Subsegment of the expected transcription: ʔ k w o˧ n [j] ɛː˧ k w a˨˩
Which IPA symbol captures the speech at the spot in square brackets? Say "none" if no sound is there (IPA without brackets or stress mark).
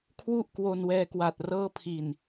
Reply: w